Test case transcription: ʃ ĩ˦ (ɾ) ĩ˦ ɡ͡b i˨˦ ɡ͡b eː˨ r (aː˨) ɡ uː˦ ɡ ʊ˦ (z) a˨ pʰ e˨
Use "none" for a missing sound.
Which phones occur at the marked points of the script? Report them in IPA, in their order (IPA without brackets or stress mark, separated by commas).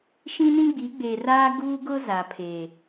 n, aː˦, z